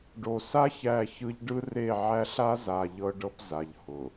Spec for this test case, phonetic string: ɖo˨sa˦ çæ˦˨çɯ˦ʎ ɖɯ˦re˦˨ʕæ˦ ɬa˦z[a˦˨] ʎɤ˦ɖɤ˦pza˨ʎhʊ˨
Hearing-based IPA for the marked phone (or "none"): a˨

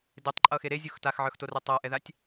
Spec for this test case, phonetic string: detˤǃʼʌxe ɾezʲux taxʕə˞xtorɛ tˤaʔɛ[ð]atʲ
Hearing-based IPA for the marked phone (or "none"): ð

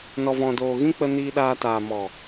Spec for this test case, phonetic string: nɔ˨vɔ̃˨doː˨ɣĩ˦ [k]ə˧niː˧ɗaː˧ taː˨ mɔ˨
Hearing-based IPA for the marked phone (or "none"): k͡p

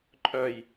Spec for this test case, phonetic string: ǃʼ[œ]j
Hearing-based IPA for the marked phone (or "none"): œ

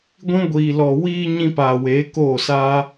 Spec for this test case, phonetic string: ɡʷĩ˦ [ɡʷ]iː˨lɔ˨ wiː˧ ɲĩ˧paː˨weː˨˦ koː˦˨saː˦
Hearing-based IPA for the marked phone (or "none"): ɡʷ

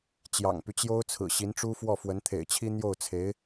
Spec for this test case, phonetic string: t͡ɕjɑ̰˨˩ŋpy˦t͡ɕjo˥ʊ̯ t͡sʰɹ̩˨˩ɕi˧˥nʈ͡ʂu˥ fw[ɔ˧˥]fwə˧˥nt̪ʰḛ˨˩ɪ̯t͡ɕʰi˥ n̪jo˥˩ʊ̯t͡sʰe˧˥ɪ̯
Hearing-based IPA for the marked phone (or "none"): ɔ˥˩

